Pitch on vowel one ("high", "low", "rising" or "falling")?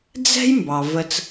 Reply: high